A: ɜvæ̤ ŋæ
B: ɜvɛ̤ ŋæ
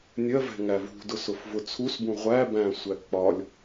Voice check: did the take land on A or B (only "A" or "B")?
B